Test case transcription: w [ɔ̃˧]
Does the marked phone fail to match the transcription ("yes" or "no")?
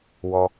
yes